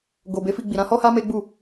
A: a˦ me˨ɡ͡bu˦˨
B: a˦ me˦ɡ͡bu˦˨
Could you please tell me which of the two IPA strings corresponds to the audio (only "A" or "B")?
B